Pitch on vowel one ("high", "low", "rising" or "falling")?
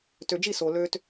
low